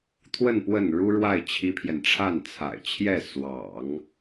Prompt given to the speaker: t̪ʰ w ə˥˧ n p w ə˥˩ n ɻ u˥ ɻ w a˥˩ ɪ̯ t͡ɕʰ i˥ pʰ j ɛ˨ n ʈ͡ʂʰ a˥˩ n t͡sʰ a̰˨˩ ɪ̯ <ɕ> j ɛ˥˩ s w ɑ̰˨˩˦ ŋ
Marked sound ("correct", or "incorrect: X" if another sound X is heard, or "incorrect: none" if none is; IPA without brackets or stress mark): incorrect: t͡ɕʰ